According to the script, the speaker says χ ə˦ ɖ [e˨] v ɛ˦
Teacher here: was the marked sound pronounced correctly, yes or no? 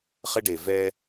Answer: yes